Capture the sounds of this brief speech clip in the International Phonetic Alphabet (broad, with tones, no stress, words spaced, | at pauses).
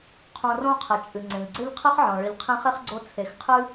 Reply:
qʰõ˨rõ˦qʰɘ˩ t͡ʃʼɨ˩ŋ͡ǀẽ˩ʎɡ͡ǀɘ˥ʎ qʰɨ˦χʕɔ̃˩ ɭɨ˨ʎqʰẽ˦χe˥χɡ͡ǀo˦ t͡sʰe˨xqʰɨ˥